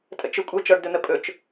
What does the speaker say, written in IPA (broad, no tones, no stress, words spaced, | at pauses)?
tʼə̰t͡ʃɵ kʷʼœt͡ʃɔɖdɵn̪ə pʼɵt͡ʃ